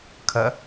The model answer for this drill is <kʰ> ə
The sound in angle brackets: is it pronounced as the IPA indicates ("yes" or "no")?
yes